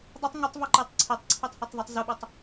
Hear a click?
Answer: yes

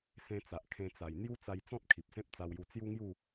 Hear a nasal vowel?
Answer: yes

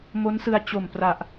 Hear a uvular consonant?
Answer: no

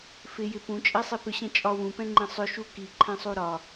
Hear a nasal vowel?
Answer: yes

